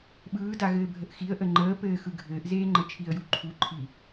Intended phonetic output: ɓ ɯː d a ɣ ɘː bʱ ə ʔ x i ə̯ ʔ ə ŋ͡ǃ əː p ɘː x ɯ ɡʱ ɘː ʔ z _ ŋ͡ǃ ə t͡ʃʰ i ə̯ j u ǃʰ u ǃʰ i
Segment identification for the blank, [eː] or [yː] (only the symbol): eː